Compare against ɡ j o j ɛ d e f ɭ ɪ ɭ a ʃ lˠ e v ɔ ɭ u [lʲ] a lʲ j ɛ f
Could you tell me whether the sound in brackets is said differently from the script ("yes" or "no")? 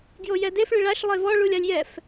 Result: no